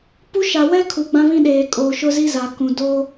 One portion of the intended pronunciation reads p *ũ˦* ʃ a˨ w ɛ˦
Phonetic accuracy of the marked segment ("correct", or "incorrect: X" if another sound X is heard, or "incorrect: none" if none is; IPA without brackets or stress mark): incorrect: u˦